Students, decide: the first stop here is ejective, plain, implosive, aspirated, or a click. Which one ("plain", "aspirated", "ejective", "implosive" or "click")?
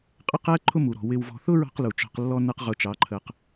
ejective